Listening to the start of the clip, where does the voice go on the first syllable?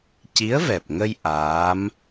rising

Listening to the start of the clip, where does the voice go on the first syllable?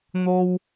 high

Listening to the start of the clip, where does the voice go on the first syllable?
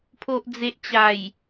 low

